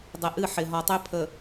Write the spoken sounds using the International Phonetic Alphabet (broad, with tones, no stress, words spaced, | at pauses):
dˤɪ˨ʔɨ˦˨ ħɪ˨ɦɔ˨tˤø˦ pʰə˨